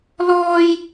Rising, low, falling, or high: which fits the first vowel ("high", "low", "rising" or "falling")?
high